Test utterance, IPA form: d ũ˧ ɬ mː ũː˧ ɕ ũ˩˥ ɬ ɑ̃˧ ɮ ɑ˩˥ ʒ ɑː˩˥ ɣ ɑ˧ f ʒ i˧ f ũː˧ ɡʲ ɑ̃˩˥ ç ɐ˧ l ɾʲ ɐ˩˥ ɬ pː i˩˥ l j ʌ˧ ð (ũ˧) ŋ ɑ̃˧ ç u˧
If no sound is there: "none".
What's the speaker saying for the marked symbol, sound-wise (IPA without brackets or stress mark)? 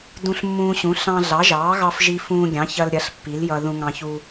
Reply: ũ˧